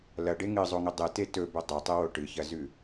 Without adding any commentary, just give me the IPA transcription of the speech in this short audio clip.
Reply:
lɐɖe ŋɨzˤoŋɵ dˤɨ tetɵbɵ dˤotˤɨwo ʈɨçɐzʉ

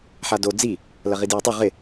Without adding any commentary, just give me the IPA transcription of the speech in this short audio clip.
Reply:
ħado d͡zi | lɐʁidjatˤu ʁɪ

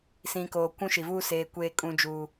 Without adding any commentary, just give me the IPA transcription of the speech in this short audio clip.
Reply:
sĩ˨koː˨ kʷũ˦ʃi˨vuː˦ seː˨ kʷeː˦kʼũ˦ d͡ʒuː˦

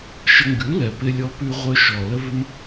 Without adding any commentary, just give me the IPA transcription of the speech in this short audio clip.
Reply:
ʃə˧ŋɡʉ˨˦lɛ˨ pɪ˧lʲɔ˧pʉ˧ʁʷœ˧ ʃɔ˨lə˦vɪ˦m

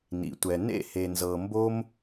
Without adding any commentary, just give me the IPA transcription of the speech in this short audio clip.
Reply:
nḭ˨tʷɛ˨ nḛ˦˨he˨ nzɤ˨mbo˦m

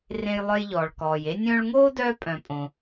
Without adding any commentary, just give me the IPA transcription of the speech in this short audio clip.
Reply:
rẽ˦jlˠœ˦jʎɔː˨ɭkɔː˨j e˦nʲœ̃ː˦ɭŋoː˥dœː˦ pʼœ̃˨pʼõ˨

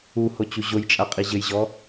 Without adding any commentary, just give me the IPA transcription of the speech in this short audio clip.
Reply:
uhot͡ɕu ʑojt͡ʃʼaqʼi ʑɘjʑɔ

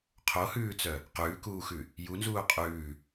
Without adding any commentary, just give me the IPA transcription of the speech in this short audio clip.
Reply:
qʰohʉːt͡sœ | qʉːkuːxʉ | junzuː qʼʉː

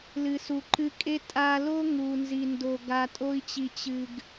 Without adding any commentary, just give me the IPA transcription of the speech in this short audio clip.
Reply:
lɨ˨su˨ǃɨ˧kʼe˦ tʼa˧lo˦ ŋu˨nzi˨ndo˨ ɡa˨tʼo˧i̯t͡ɕi˨ t͡ɕɨ˨ɡ

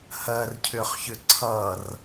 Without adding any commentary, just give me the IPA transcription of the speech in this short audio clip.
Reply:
hɜrcʰʏχçʏ ǀʰʌr

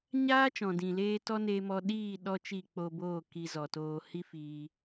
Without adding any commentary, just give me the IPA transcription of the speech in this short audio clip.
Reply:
ɲaː˦t͡ʃɔ̃˨dĩ˨leː˧ tɔ˦neː˧mɔ˧ ɗiː˦˨ ɗɔ˦t͡ʃi˦˨k͡po˧boː˦˨ ki˧zɔ˨toː˧ hi˦fiː˧

